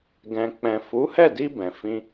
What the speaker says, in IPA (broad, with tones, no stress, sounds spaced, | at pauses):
ɡ ɛ̃˨ k͡p ɛ̃˨ f u˨˦ h ɛ˦˨ d i˧ b ɛ̃˨ f ĩ˧